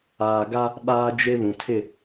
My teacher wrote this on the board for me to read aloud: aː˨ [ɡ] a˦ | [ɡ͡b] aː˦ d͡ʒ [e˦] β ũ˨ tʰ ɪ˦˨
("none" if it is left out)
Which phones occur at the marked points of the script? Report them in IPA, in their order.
ɡ, ɓ, e˦

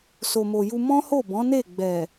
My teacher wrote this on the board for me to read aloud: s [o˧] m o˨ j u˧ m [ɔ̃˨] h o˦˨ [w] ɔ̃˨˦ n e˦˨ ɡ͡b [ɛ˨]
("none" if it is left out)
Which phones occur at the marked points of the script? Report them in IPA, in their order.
o˨, ɔ̃˦, b, ɛ˨

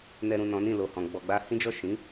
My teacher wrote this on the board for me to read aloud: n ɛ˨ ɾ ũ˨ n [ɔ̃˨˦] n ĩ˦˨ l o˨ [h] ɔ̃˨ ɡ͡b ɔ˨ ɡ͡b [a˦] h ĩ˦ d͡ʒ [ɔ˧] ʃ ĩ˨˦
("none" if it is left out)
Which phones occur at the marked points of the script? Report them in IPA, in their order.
ɔ̃˨˦, h, a˧, ɔ˦˨

